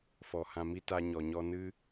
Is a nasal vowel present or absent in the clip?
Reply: present